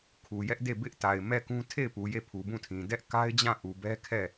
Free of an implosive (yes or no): yes